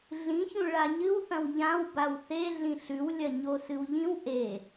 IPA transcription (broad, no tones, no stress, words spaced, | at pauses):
ɮĩçũ ɭaɲɨwθɐ̃w ʎãw bawθe ɮĩɬʉwlʲɐ ɲosɨwʎĩw ʔe